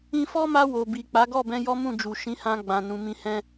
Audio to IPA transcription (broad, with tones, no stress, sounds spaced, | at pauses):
ĩ˧ f ɔ˦ m a˧ w o˨ b i˨ k͡p a˨˦ ɡ ɔ˦˨ b ɛ̃˧ j ɔ˦ m ũ˦˨ d͡ʒ u˨ ʃ ĩ˨˦ h ã˧ ɡ͡b ã˨ n ũ˨ m ĩ˧ h ɛ̃˦